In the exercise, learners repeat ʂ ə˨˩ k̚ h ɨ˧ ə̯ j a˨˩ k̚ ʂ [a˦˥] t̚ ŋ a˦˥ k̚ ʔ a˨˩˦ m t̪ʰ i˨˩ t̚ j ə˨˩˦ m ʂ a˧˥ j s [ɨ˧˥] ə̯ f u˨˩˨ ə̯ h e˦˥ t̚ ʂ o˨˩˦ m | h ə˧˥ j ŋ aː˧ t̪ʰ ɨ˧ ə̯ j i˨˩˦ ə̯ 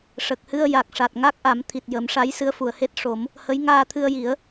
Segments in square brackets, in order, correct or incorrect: incorrect: a˨˩, correct

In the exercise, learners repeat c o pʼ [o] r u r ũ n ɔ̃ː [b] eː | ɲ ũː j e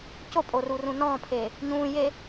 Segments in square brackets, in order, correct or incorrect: correct, incorrect: pʰ

